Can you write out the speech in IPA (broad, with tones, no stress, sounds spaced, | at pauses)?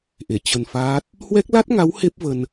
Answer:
ʔ e˧˩ t͡ɕ ə˧ n f aː˦˥ t̚ | h w ɛ˦˥ k̚ l a˦˥ t̚ ŋ a˨˦ w h e˦˥ p̚ v ə˧ n